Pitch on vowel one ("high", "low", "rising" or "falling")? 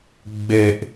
low